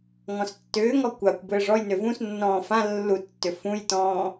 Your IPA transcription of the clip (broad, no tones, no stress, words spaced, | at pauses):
ŋɔ̃stːʏːŋɔ kʷakʷ bɘːʐɔjnʏ vũsnːɔ̃ː fã lːutːʏ fũjtɔ̃ː